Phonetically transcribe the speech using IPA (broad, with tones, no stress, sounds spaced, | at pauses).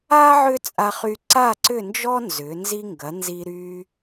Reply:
a˥ ʕ ʏ˥ t͡sʼ a˧ χ y˧ ǀ a˥˧ ǀ ʏ˥˧ n d͡ʒ ɔ˥ n z ʏ˩˧ n z i˧ ŋ ɡ ɐ˩˧ n z i˧ ɾ y˧